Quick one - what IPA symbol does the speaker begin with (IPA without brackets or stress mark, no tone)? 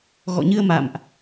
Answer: ɣ